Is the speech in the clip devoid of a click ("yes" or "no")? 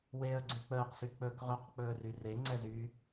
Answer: no